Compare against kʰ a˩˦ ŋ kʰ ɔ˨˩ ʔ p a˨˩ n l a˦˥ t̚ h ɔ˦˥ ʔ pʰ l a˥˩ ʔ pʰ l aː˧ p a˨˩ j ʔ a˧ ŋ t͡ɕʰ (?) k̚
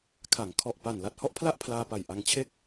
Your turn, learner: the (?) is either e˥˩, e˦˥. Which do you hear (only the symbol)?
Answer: e˥˩